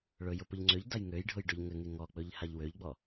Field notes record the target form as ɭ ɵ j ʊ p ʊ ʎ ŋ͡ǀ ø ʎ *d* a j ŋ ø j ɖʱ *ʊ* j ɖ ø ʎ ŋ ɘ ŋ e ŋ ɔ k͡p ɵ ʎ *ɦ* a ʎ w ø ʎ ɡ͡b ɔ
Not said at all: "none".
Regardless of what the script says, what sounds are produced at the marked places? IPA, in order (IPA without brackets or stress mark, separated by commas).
d, ʊ, h